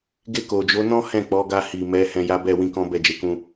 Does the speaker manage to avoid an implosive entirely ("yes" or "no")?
yes